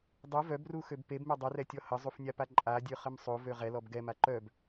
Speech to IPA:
dˤ u v œ b r u x ø b p e b m ø dˤ ə r ɛ tʲ ɔ h ə zˤ u f nʲ a p a ǃʼ a dʲ ø χ ə m sˤ o v ø ʁ ɛ l ɔ b ɡ ɛ m a ǃ œ b

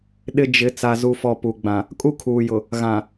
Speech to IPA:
ɗ ɪ˦ d͡ʒ ɪ˨˦ t͡s a˨ z u˨ f ɔ˨ p u˨ ɡ͡b ã˨ | kʼ u˦ kʰ uː˨ j ʊ˨ | ɣ ã˨

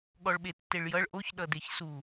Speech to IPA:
ɠ ɔ ɭ ɓ e tː e ɭ j ʌ ɭ ʔ o ç ɗ ʌ d e ç s u

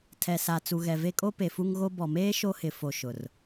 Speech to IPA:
tʰ ɛ˨ s a˨ t͡s u˨ ɣ ɛ˨ v e˦ kʼ o˦ p e˨ f u˦ ŋ ɣ o˦ b ɔ˨ m eː˦ ʃ o˦ h ɪ˨ f o˨ ʃ ʊ˨ r

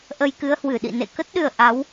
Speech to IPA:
ʔ ə˧ j k ɨ˨˦ ə̯ h w ɨ˧˩ ɗ ḭ˧˨ n ḛ˧˨ k ə˦˥ t̚ ɗ ɨ˨˩ ə̯ ʔ a˨˦ w

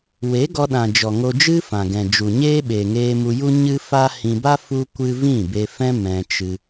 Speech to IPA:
w e˨˦ ɡ ɔ˧ ɗ ã˨ d͡ʒ ɔ˨ ŋ o˧ d͡ʒ ɨ˦ f ã˨ ɡ ɛ̃˨ d͡ʒ u˨ ɲ eː˦ ɓ e˨ ŋ eː˧ m u˧ j u˦ ɲ ɨ˦ f a˦ h ĩ˧ b a˦ f u˦ kʷ ɨ˦ v ĩ˦˨ b e˧ f ɛ̃˦ m ɛ̃˧ t͡ʃ ɨ˧

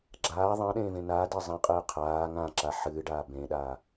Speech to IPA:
ɡ͡ǁ aː ðˤ ɛ̃ ɗ ẽː v ẽ n a d e zˤ ẽ qʼ ɨː qʰ aː ŋ ã ǁ a ħ ɨː ɖ aː b ẽ ɗ aː

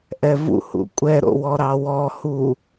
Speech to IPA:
ʔ ɛ v ṵ h ṵ kʷʼ ɛ ɾ o̰ w ɔ ɾ ɑ w ɔ h u

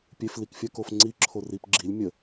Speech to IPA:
pʲ e f l i k fʲ ɜ k o f ŋ͡ǀ i ǁʰ o r i p ɡ͡ǁ i lʲ mʲ ə

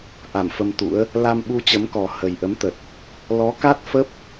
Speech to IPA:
ʔ a˧˩ m f ə˧ m t̪ ṵ˧˥ ə̯ | l a˧ m ɓ u˧ t͡ɕ ə˨˦ m k ɔ˨˩ h ə˨˩ j ʔ ə˨˦ m t̪ ə˨˩ t̚ | l ɔ˨˦ k a˦˥ t̚ f ə˦˥ p̚

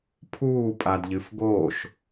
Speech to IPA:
pʰ uː pʼ a d ʎ ɨ f ɡ o ʃ

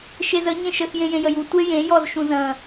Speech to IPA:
ʃ e z ə ɲ ẽ ʃ ə x j ẽ j ẽ j ə j u tʷ e j ẽ j ɔ z ʃ ũ z ə̃

